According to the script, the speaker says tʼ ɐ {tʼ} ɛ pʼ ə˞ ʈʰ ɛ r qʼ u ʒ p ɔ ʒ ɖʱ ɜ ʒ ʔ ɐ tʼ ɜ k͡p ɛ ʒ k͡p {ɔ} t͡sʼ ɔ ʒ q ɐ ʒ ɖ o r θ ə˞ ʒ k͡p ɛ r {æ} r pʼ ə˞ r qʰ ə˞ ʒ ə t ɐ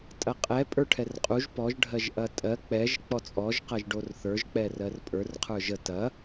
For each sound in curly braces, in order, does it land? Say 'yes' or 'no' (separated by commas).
no, yes, no